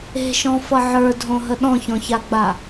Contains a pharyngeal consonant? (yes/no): yes